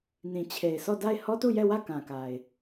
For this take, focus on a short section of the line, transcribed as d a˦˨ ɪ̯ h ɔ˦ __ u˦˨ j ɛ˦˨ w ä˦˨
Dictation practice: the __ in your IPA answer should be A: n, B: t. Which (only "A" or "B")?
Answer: B